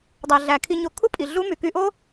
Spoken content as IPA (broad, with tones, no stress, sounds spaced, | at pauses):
dˤ æ˨ ɮ æ˨ kʰ i˧ ɲ o˧ kʰ u˦ pʼ i˨ ɮ u˦ m y˨ k y˧ ʔ o˦